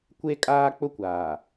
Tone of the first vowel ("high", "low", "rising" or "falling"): high